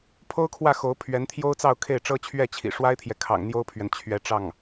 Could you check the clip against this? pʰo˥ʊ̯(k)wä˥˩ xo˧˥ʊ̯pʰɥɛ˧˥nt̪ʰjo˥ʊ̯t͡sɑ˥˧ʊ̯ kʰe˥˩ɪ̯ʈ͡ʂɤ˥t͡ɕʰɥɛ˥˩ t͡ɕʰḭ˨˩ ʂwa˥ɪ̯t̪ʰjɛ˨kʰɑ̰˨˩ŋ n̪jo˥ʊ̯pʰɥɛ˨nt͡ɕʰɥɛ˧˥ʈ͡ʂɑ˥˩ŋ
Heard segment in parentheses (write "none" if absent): kʰ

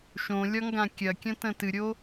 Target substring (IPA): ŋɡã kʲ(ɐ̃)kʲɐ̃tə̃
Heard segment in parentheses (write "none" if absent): ɐ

